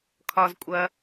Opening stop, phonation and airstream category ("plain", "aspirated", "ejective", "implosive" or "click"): aspirated